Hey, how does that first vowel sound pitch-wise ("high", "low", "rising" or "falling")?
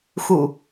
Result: low